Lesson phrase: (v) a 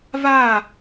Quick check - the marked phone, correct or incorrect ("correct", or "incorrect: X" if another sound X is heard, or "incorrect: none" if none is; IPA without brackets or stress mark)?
correct